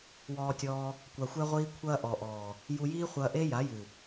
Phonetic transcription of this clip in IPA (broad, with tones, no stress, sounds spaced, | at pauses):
w ɔː˧ tʲ ɔː˧ | kʷ a˨ xʷ ɛ˧ ʁʷ iː˧ kʷʰ ɐː˦ ʔ ɔ˨ ʔ ɔː˨ | j u˧ j iː˦ χʷ ɐː˧ ʔ e˦ j a˨˦ j ɨ˨